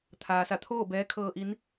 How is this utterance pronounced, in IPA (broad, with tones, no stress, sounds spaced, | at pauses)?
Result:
t̪ʰ aː˩ s a˧˩ t̪ʰ oː˥˨ b ɛː˧˥ kʰ ɤː˧ ʔ i˧˥ n